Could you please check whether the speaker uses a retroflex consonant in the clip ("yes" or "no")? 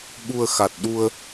no